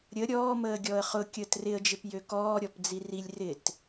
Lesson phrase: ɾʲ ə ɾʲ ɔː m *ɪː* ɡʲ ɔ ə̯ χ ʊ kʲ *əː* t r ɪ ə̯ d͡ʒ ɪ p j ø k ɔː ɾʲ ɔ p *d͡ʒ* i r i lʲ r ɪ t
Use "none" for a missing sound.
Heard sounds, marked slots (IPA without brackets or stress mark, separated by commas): əː, əː, d͡z